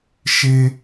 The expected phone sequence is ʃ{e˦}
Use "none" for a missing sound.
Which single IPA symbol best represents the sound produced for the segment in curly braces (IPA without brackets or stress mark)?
e˦